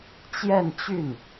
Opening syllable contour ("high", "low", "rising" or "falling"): falling